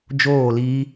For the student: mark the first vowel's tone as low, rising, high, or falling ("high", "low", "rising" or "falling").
falling